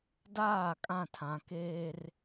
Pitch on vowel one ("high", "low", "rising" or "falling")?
falling